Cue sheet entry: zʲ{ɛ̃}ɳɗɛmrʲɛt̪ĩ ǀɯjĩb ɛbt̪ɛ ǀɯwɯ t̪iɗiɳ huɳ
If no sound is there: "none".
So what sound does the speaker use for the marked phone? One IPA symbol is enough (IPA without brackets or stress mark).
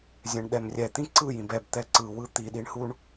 ɛ̃